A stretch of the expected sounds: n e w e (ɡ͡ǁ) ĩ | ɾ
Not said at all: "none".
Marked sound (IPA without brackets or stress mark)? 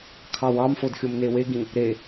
ɡ